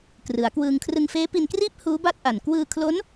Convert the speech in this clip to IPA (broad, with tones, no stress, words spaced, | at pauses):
krɯ˩˦a̯kwɯː˧ŋ kʰrɯ˧ŋ feː˦˥pi˧nkriː˥˩p̚ huː˦˥ba˥˩t̚ʔa˨˩n kwɯː˧kʰlo˦˥n